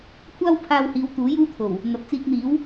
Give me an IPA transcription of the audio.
kʷʰ aː˥ w pʰ aː˧ w h iː˨˧ w t̪ uː˨˥ j uː˥ t̪ʰ o˨˩ w | n̪ ɐ˨ p̚ t͡s iː˧ k̚ n̪ iː˨˥ w

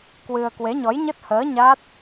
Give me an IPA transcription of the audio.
k w ɨ˧ ə̯ k w e˨˦ ɲ ɔ˨˦ j ɲ ə˦˥ t̚ h əː˨˦ ɲ a˦˥ t̚

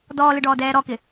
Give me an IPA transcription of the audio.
d ɔː l ɪ ɖ ɔː d ɛː ɾ ɔ k ɪ

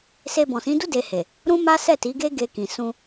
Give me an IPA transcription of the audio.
s e˧ b ɔ̃˨ s ĩ˨˦ d u˦ d e˧ h e˨ | ɾ ũ˦ m a˦ s ɛ˦˨ t i˨˦ ɡ e˦ ɡ e˧ k ĩ˨ s ũ˧

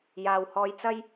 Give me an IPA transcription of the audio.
j aː˨ w h ɔː˧ j t͡s ɐ˥ j

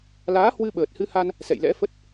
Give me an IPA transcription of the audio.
l aː˨˦ h w ɨ˧ ɓ əː˨˩ t̚ h ɨ˧ h a˧ n | s ɛ̰˧˨ j l ɛ̰˧˥ f ə˦˥ t̚

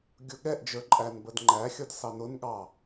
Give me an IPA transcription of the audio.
ɡʲ ʊ ɠ ɛ ʔ d͡ʒ ə˞ ǃʼ æ n b ə d ŋ͡ǃ æ xʲ ʌ d s ɑ n ʊ n ɠ ɑ

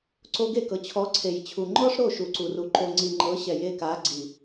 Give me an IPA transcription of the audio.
ǀ o˧ ɡ e˦˨ k ɤ˨ t͡ɕʰ ɔ˨˦ ǀʰ e˨ j t͡ɕʰ u˨ ŋ͡ǃ ɔ˦ ʂ ɾ o˦˨ ʃ u˨ ǀ u˨ r u˨ ǃ o˨ ŋ͡ǀ i˨ ŋ͡ǃ ɤ˨˦ ɕ ɛ˨ j e˦˨ k a˨˦ ɡ͡ǀ i˨

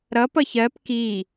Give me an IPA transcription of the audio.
ɾ ʌ p ʌ ç ɜ p k i

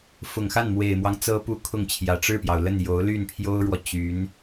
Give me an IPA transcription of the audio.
f ʊ˨˩ ŋ x a˥˩ n m w e˨˩ ɪ̯ m w ɑ˦ ŋ t͡s ɤ˥ p u˥˧ kʰ ʊ˥˩ ŋ t͡ɕʰ j ä˨˩ ʈ͡ʂ ɻ̩˥˩ p j ɑ˩ ʊ̯ l ə˥˩ n j o˧˥ ʊ̯ l y˥˩ n pʰ j o˥ ʊ̯ ɻ w ɔ˨ t͡ɕ y˧˥ n

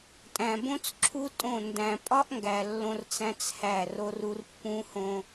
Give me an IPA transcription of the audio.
tʼ æ̃˨ b õ˦ t͡s ǁʰ u˦ tʼ õ˦˨ n d æ̃˨ pʼ ɒ˦ ʔ ŋ ɡ æ˨ lː õ˦ r t͡s æ̃˦ t͡s h æ˦˨ r o˦ r u˦ r pː ũ˦ h õ˦

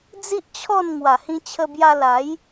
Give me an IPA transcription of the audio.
d͡z i˦ ʔ t͡ɕʰ ɔ˥˧ n ŋ w a˨˩ h ĩ˧ t͡ɕʰ ə˧ b j a˧ l a˨˦ j

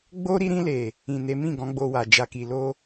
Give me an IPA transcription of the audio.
ɡ͡b o˦ ɾ i˧ ɾ ĩ˧ l e˨ | ĩ˨ n e˨˦ m ĩ˦˨ ɡ ɔ̃˨˦ ɡ͡b o˧ w a˨ d͡ʒ a˨ k i˨ l o˧

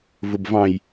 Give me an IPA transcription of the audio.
v ʊ b v ɑ̃ j

